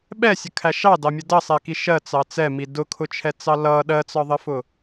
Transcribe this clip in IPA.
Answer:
ɓ ɛ sʲ ə kʰ æ ʃ ɑ d ɑ mʲ ə d ʌ sˤ ɛ k i ʃ ɜ t͡s ɑ t͡s ɛ m i d ʊ kʰ ʊ t͡ʃʰ ɛ t͡s ɑ l ʌ ɗ ɜ t͡s ɒ ðˤ ə f ʊ

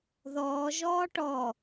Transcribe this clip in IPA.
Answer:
ð ɔː ʒ ɔː ʈ ɔ

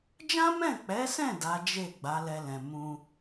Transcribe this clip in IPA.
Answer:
d͡ʒ ã˦ m ɛ̃˦˨ k͡p ɛ˨˦ s ɛ̃˦˨ d a˨˦ d͡ʒ e˦˨ ɡ͡b a˨˦ l ɛ˧ l ɛ̃˨ m ũ˧

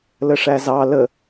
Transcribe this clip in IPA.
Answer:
l ə ʂ æ z ɑ l ə

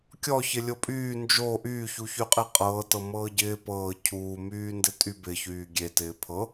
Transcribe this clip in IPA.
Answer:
kʲ ɔ ç ɪ lʲ o pʼ yː n d͡ʒ o ʔ yː ç u ç y qʼ e qʼ ɤː t ɤ m ɤː ɟ ɪː p ɤː cʰ uː m yː n d ɪ tʼ y b ɪ ç yː ɡʲ e t ɪː pʰ ɤ

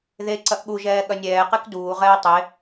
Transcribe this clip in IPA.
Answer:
ð e ǀ ɐ ʔ ɠ u ʒ ɛː ɠ ɐ nʲ ɛː q e k d uː ʁ ɛː tˤ e

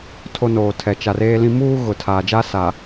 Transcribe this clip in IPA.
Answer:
tʰ o˦ n oː˨ tʰ ɛ˨ t͡ʃ a˨ r eː˦ l ĩ˦ m uː˦ ɣ ʊ˨ tʰ aː˨ d͡ʒ a˦ s a˨

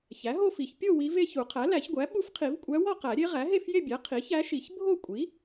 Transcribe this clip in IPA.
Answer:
ç æ˩˥ ɦ o˥˧ f i˨˩˦ ç pʲ o˥˧ w i˧˥ v e˥˧ ç u˨˩˦ qʰ æ˩˥ l æ˨˩˦ ç ɡʷ æ˩˥ ɓ u˧˥ f qʰ i˨˩˦ v kʷʼ æ˧˥ w ɒ˥˧ q æ˨˩˦ ɾʲ e˧˥ ʁ æ˩˥ ɦ e˥˧ f j e˥˧ bʲ æ˩˥ qʰ i˩˥ ç æ˧˥ ʃ i˨˩˦ ç bʱ o˥˧ kʷʼ i˩˥

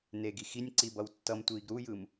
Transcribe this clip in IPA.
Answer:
n e ɡ i x i nʲ ǀ i b ʌ w tː ʌ m tʷ iː ɡ ɾ u j ɯ m

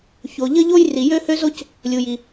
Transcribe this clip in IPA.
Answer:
ç o˩ ʎ ə˥ ʎ o˥ j r i˩ j ø˥ h ø˥ z o˥ c | lʲ u˩ j i˩

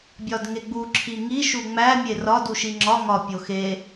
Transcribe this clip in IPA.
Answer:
bʲ ɒ d ŋ e ɡ͡b u ǁʰ i ŋ i ʃ u ŋ͡m æ mʲ e r ɒ d u ʃ i ŋ͡ǁ ɒ ŋ ɒ pʲ o x e

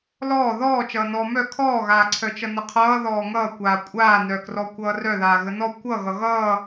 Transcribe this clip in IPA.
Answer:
l ɔː ð ɔː t͡ʃ ʌː n ɔː m œ kʰ ɔː ɣ aː ǀʰ œ t͡ʃ ʌ n ə qʰ ʌː ð ɔː ŋ ʌː kʷ aː kʷʼ aː n œ k r ɔ kʷ ʌː r œ ð aː ɣ ə n ɔ kʷ ʌ ɣ ʌ ɣ ʌː

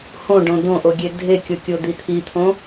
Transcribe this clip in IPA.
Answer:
h õ ɖ õ d̪ õ ʔ o ɡʲ e dʱ e kʲ o kʲ o d̪ i t̪ʰ i t̪ʰ õ

